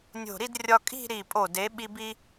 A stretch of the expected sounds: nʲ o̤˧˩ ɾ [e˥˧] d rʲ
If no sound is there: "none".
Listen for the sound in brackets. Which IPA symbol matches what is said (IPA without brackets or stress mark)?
i˥˧